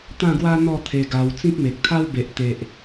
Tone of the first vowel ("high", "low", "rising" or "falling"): falling